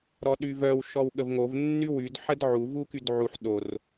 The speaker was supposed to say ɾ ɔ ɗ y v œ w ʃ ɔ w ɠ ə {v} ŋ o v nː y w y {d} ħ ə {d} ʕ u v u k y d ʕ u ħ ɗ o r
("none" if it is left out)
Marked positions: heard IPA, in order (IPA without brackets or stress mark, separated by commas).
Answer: v, d, d